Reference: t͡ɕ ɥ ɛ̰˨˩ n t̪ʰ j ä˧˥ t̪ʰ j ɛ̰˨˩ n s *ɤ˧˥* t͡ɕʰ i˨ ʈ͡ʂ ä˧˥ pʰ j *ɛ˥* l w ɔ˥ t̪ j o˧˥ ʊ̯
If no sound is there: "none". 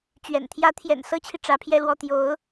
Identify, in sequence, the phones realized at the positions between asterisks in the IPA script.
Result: ɤ˥, ɛ˥

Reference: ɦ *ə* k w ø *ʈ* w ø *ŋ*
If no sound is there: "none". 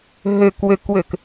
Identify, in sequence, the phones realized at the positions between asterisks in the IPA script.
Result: ø, k, k

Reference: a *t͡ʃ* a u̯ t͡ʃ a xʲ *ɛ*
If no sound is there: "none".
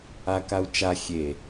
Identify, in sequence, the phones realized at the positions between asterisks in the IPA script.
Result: k, e

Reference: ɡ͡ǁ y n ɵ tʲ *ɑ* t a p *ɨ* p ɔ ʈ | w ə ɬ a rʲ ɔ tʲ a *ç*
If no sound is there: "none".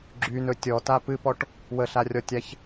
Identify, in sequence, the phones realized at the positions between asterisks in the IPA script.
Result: ɔ, ɨ, ç

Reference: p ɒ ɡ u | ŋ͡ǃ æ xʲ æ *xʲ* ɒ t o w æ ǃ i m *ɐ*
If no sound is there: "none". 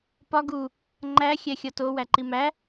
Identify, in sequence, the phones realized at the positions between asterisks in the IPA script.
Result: xʲ, æ

